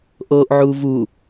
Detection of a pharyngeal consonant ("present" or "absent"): present